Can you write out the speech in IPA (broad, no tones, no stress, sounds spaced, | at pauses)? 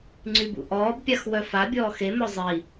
ŋ͡ǀ y b ṵ ʔ ɔː b pʲ a x w œ f a bʲ ɔː x e m œ zˤ i